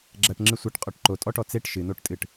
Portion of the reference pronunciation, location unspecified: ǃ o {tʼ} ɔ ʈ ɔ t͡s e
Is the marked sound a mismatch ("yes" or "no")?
no